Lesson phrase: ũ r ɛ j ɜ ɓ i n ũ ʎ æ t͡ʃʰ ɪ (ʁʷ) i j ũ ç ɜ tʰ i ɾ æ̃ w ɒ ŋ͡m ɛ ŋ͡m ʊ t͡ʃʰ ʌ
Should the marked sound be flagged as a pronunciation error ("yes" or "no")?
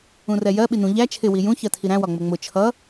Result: yes